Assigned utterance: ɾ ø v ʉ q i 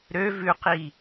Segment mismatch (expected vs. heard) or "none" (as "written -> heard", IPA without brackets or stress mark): none